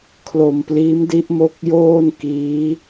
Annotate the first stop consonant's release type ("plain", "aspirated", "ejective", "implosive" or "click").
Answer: aspirated